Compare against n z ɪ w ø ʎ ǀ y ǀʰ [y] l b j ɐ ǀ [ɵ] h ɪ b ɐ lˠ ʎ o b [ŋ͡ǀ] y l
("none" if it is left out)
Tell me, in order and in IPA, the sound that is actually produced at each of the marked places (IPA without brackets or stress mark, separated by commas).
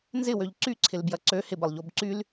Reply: ɪ, ø, ǀ